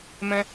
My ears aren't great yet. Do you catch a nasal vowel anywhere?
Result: yes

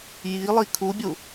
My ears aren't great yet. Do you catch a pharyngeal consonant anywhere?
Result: no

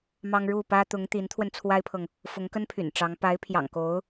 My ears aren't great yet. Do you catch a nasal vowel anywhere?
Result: no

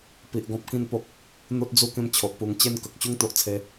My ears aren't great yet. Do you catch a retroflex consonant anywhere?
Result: no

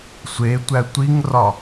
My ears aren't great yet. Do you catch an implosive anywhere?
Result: no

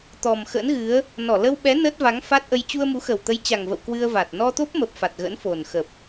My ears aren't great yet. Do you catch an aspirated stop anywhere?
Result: no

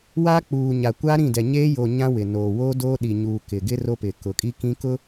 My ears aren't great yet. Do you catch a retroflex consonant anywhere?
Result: no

